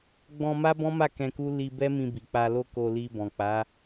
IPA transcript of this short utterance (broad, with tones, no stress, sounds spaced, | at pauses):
ɡ͡b ɔ̃˧ m a˦ b ɔ̃˦ m a˦˨ k ɛ̃˧ k u˦ l i˧ b ɛ˦ m ĩ˧ b i˨ k͡p a˧ l o˦ k o˧ l i˧ b ɔ̃˨ k͡p a˨˦